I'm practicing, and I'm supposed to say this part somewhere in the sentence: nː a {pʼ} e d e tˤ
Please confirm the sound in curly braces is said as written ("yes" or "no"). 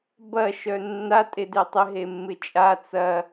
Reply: no